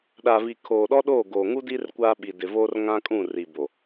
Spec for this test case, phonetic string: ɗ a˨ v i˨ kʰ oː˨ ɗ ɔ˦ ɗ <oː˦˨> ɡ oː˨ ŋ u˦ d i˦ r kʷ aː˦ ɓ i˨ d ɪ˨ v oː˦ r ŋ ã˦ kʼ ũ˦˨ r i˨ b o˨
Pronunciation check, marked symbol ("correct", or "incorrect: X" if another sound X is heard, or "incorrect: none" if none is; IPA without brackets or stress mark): correct